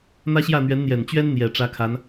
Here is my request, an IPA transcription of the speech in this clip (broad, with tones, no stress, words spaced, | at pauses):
n̪ä˥ɕjä˥˩n̪ɥɛ˧˥n n̪jɛ˨˩nt͡ɕɥɛ˥nn̪jɛ˨˩ ʈ͡ʂä˧˥kʰa˧˥n